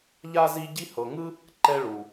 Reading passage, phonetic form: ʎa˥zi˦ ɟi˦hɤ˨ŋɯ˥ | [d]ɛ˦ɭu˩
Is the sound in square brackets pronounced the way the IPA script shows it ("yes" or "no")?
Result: no